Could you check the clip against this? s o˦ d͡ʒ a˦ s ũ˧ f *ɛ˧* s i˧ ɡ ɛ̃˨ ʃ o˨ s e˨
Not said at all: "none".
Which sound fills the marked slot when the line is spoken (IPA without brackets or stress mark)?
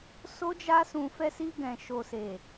ɛ˧